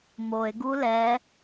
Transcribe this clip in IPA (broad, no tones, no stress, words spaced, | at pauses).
moe̯ɡu lɛ